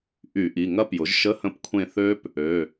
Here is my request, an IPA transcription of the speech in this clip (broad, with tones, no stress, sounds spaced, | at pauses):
ʔ y˧˩˧ ʔ i˩˧˩ ŋ ɐ˦˥ p j ʊ˩˥ ʒ ʃ ə˧˥˧ h ə̃˦˨ p kʷʰ ẽ˦˨ θ ø˦˥ p | ø˩˧˩